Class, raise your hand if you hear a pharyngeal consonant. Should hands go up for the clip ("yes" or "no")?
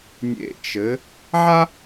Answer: yes